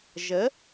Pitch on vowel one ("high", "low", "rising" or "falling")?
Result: rising